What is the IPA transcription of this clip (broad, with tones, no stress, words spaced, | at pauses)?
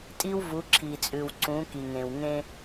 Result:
tʼi˦wvu˨˦ǁʰi˨t͡sʼʉ˨w ǀũ˨˦ki˨ŋẽ˨wŋẽ˦